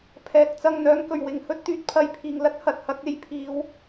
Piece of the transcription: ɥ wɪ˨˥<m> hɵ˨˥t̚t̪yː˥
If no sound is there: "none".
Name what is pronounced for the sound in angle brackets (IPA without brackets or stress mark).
ŋ